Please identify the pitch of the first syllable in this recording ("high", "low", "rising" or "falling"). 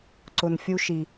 low